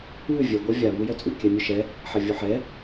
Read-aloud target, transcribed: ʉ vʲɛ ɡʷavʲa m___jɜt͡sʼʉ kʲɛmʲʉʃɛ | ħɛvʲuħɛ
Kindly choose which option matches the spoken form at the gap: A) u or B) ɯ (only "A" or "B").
A